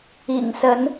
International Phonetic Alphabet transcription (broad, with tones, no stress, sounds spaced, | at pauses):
ḭ˨˩ ŋ s ə˨˦ n